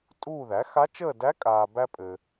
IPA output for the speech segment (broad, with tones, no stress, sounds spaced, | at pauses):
tʼ uː˦˨ ð æ˩˥ x a˧˥ t͡ʃ əː˦˨ d æ˧˥ kʼ aː˨ b æ˥ pʼ ɘ˨